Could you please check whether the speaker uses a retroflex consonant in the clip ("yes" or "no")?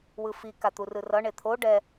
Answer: yes